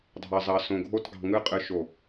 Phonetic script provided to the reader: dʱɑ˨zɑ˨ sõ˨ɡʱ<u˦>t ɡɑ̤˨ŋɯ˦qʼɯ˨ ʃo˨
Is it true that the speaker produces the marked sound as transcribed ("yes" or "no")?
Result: no